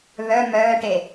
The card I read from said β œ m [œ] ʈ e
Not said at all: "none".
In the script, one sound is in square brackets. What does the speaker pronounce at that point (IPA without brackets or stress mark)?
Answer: œː